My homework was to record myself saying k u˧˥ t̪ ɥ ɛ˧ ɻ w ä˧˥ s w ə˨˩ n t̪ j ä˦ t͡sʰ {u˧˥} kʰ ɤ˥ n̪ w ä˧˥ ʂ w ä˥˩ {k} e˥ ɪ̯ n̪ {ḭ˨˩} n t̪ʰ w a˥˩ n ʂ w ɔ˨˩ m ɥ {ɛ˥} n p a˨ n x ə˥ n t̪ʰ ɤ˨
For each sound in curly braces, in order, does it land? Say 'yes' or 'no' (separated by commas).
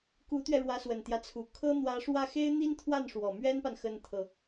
no, no, no, yes